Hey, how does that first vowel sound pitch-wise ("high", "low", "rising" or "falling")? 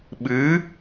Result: rising